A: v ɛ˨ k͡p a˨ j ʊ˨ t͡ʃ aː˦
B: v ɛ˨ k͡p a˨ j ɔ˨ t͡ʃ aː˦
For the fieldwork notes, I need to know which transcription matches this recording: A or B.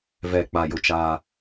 A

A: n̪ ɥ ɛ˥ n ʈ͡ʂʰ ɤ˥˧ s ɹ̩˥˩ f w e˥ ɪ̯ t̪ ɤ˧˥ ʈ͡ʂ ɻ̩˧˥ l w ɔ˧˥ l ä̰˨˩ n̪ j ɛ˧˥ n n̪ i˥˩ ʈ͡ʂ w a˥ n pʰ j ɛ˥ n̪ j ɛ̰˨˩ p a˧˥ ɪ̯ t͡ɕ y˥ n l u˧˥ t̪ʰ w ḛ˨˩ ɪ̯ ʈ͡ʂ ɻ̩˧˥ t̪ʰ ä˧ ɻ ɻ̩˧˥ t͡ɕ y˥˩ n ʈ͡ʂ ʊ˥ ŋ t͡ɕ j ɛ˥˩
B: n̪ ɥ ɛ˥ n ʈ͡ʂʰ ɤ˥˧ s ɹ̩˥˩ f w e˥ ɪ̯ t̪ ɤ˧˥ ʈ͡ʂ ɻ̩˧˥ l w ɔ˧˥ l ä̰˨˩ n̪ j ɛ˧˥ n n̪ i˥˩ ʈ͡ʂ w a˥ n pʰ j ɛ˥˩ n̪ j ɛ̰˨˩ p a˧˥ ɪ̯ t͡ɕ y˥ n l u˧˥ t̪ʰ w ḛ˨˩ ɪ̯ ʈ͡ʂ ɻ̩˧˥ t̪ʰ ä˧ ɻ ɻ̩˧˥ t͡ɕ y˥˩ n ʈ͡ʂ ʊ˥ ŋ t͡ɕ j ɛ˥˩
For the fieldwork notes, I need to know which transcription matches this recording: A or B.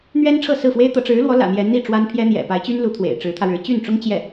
A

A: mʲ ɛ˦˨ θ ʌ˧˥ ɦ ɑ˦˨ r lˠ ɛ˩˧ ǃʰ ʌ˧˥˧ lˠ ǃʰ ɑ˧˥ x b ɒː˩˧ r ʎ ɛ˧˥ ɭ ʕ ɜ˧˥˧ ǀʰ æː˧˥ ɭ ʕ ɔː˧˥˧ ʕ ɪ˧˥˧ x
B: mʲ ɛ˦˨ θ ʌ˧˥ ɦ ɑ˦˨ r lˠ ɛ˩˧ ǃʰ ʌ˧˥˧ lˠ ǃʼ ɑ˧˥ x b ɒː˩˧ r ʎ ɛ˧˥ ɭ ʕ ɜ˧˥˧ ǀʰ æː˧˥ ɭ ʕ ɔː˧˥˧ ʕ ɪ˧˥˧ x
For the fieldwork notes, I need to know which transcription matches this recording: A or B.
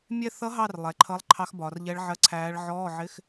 A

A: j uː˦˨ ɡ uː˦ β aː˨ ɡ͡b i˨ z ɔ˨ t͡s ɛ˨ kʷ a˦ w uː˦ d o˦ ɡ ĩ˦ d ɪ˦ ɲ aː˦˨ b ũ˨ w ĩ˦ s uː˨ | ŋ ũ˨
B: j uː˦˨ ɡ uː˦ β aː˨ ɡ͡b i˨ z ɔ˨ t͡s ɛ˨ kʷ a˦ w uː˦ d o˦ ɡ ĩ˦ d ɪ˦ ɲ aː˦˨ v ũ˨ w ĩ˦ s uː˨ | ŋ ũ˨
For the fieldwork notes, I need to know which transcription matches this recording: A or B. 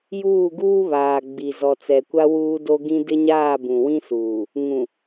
A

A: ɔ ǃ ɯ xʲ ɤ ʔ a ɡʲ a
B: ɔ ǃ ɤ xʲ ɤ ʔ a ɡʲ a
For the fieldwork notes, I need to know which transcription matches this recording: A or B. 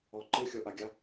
A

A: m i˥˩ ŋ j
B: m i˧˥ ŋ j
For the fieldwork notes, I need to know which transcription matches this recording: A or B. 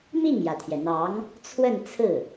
A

